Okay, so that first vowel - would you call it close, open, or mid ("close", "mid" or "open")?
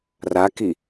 open